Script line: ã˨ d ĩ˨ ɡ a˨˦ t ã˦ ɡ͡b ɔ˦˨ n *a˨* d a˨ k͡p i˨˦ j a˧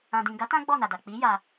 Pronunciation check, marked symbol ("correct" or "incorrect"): correct